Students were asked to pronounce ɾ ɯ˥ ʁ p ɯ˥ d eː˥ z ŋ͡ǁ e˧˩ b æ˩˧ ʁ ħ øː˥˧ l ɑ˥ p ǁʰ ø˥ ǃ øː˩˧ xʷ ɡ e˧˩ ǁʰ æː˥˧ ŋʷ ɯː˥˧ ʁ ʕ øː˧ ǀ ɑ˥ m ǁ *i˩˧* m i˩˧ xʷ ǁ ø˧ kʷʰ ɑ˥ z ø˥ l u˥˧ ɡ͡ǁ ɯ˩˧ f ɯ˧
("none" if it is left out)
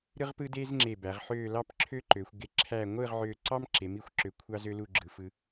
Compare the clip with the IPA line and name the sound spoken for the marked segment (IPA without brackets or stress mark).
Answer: e˩˧